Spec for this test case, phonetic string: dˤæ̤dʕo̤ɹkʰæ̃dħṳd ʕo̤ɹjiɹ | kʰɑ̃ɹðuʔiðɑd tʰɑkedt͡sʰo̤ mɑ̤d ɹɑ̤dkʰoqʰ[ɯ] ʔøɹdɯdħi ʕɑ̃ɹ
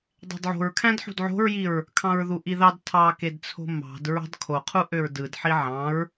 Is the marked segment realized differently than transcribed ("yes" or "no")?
yes